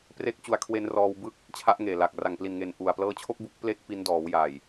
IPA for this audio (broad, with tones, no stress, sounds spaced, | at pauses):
p r e˦˥ k̚ t͡ɕ u˧ a̯ kʰ w e˦˥ n r ɔː˧ w b ɯ˥˩ k̚ | t͡ɕʰ a˦˥ ʔ ŋ eː˨˩ l a˨˩ k̚ r a˨˩ ŋ p l i˨˩ n ŋ e˨˩ n ʔ u˨˩ a̯ p l ɤː˦˥ t͡ɕʰ o˥˩ k̚ b u˦˥ k̚ p l eː˥˩ k̚ p i˦˥ n d ɔː˩˦ w j a˨˩ j